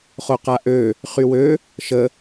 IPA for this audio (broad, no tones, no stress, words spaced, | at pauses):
χoqaʔø | χywø | ʃə